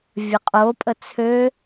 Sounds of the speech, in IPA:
vʲ ɐ qʼ o pʼ ə t͡sʰ ø

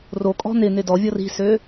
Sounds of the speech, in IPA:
r o kʼ ɔ̤ n ɪ n ɪ d ɔ vʲ ɔ r i̤ s ø

